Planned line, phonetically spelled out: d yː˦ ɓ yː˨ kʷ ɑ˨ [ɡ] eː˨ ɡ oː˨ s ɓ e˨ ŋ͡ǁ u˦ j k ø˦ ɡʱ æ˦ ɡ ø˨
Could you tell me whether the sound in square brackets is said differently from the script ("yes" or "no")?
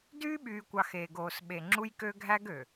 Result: yes